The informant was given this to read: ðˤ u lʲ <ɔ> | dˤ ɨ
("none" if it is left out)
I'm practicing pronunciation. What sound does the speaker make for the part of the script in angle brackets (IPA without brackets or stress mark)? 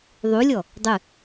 ɔ